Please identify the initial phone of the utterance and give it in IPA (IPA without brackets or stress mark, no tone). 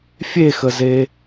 fʲ